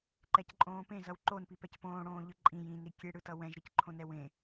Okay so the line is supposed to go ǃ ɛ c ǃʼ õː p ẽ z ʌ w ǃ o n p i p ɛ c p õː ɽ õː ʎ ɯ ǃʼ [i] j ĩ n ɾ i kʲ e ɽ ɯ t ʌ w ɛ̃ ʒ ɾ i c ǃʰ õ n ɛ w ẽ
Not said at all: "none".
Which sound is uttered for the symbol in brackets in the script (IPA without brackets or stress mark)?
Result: ĩ